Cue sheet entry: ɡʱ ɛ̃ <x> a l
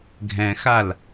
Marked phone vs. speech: correct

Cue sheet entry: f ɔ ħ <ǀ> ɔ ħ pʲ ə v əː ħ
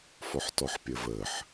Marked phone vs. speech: incorrect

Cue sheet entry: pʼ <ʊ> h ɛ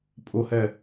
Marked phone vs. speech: correct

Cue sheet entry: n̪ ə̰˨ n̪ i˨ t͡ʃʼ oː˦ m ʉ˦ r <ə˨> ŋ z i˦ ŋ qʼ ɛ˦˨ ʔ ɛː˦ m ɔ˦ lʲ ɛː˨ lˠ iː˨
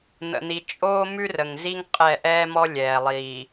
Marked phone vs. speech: correct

